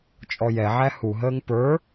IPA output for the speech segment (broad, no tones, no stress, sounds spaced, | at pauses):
t͡ʃʼ ɔ j ɛ ʕ æ h u ɦ əː ŋ p ə˞